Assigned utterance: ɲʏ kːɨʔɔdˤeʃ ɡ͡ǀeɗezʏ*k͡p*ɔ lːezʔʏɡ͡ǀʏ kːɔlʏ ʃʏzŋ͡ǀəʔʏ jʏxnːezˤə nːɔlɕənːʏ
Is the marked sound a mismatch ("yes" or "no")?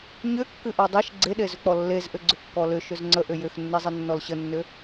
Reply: no